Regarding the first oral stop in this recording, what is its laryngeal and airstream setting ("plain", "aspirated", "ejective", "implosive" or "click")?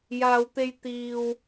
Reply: plain